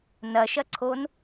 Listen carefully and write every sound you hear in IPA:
n ɐ ʃ ɐ ǀʰ o n

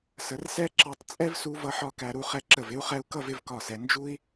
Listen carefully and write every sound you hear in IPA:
s ə˩˧ r s ɛ˥ ǁ ɑ˧ tˤ t͡sʼ ɛ˥ v s u˧ v ʌ˧ ħ ɒ˧ k æ˧ ɾ u˧ χ ɛ˧ ǁ ə˧˩ v ɪ˥ u̯ χ ɛ˧ u̯ k ʌ˥˧ v ɪ˩˧ v k ɒ˧˩ s ɛ˩˧ n d͡ʒ u˥ i̯

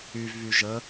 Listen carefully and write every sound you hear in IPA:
y v β y ʒ ə

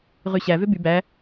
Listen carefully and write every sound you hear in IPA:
ʁ y ɕ æ v ø b y b æ

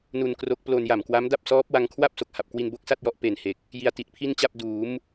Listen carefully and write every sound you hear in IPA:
n u˧ n k r o˦˥ k̚ p l o˧ n j a˨˩ m k w a˦˥ m d a˥˩ p̚ s ɔː˦˥ p̚ w a˧ ŋ kʰ w a˥˩ p̚ s o˦˥ k̚ h a˨˩ p̚ k w i˧ n b o˥˩ k̚ s a˥˩ t̚ j ɔ˦˥ ʔ p e˨˩ n h e˨˩ k̚ | j i˧ a̯ t i˨˩ t̚ pʰ i˥˩ n t͡ɕ a˥˩ p̚ d uː˩˦ m

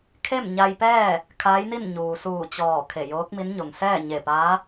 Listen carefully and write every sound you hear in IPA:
kʰ e˥˨ m ɲ a˧ j p ɛː˥˨ | kʰ aː˧˥ j n i˥˨ n ɲ uː˩ s uː˧˩ t͡ɕ ɔː˧˩ kʰ e˧˩ j oː˧˥ k̚ m i˧˥ n ɲ o˩ ŋ s ɛː˥˨ ɲ e˧˩ p aː˧˥

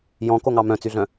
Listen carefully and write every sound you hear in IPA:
j ɔ̃ k o ŋ ɑ m œ̃ t͡s y ɮ œ̃

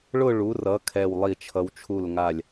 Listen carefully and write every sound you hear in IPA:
ɭ ʊ˥˧ ɭ u˩˧ r ʌ˩˧ kʰ ɛ˧˩ w lˠ i˧˩ t͡ʃʰ ʌ˧ w t͡ʃʰ u˧˩ l ŋ a˧˩ lʲ

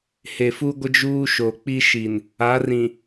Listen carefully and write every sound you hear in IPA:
h e˨ f u˦ ɡʷ ɪ˦ d͡ʒ uː˦ ʃ o˨ k͡p i˦ ʃ i˨ n | a˨˦ r ĩ˨

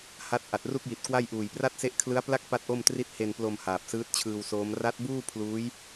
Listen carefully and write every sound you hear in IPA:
h a˦˥ t̚ ʔ a˨˩ t̚ r u˥˩ k̚ j i˨˩ t̚ k w a˥˩ j ʔ uː˨˩ j p r a˥˩ t̚ s e˦˥ ʔ kʰ l ɯ˦˥ a̯ p l a˥˩ k̚ p a˥˩ t̚ ʔ o˥˩ m t r i˥˩ t̚ h e˧ n p l o˧ m h aː˨˩ p̚ s ɯː˦˥ t̚ t͡ɕʰ ɯː˧ w s oː˦˥ m r a˦˥ t̚ b uː˥˩ pʰ l uː˦˥ j

